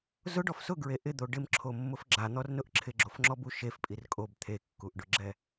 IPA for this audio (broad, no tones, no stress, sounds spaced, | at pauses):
z ʊ ɖ ɔ f s ʊ ɡ ɹ e ʔ ɪ d̪ o ɖ ɪ m ǁʰ o mː ʊ f ɡ͡ǁ a n̪ ɔ r n ʊ ʔ ǁʰ ɪ ɡ͡ǁ o f ŋ͡ǁ ɔ b u ʃ e f pʼ i r kʼ o b t̪ʰ e kː u ʔ ɖ ʊ ɡ͡ǁ ɛ